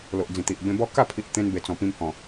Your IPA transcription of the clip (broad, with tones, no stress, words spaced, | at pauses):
lo˨ʔd͡zĩ˨˩t̪i˨ʔ bẽ˧bɔ˦ ka˥˧pʰi˨ʔ t̪ẽ˧nbe˨˩ t͡sɔ̃˨˩pĩ˧mhɔ̃˨˩